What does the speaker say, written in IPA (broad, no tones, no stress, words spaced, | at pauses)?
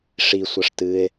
ʂisʷɐʂ tɨe̯